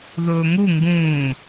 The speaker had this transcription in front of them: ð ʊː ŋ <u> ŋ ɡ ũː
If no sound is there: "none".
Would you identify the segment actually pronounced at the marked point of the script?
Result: u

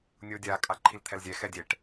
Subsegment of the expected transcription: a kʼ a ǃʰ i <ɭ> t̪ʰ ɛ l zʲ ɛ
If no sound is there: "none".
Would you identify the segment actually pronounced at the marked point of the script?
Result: l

